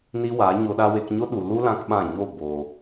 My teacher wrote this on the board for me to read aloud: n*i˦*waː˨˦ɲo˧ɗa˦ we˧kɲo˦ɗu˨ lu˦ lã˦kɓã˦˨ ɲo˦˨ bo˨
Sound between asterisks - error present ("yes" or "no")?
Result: no